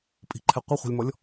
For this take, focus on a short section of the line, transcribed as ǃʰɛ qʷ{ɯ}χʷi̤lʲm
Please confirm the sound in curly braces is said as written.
yes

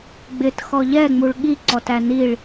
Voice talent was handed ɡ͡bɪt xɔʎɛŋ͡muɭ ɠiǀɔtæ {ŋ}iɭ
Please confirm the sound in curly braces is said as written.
no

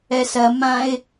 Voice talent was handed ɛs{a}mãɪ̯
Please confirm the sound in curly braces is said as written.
no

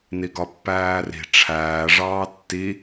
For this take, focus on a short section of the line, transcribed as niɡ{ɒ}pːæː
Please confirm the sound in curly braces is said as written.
yes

